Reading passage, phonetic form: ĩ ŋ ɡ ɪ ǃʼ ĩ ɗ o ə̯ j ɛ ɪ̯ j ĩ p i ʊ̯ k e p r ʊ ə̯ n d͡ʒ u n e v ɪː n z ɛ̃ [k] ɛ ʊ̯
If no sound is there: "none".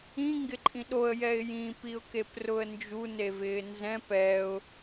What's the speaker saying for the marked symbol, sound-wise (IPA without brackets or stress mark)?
p